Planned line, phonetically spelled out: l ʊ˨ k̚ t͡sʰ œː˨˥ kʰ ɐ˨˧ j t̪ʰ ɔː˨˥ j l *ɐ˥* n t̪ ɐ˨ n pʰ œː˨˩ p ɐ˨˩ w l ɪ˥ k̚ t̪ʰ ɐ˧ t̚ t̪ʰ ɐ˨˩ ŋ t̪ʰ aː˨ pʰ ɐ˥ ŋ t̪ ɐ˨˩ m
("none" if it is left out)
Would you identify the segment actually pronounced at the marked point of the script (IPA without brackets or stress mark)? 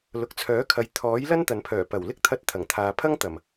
ɐ˥